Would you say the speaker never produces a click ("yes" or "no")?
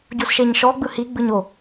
yes